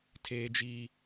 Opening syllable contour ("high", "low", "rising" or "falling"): high